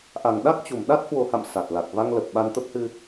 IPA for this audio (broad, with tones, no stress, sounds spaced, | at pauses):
ʔ a˨˩ ŋ ɗ a˦˥ k̚ t͡ɕ u˨˩ m ɗ a˦˥ t̚ h w o˨˩ h a̰˧˨ m s a˨˩ t̚ l a˨˩ k̚ v a˧ ŋ l ə˨˩ p̚ ɓ a˧ n t̪ ə˦˥ p̚ h ɨ˧